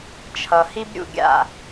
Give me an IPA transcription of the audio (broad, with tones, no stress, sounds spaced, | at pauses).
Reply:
t͡ʃʰ ʌ˨ h i˦ b ɾʲ ṵ˦˨ ɡʲ a̰˦˨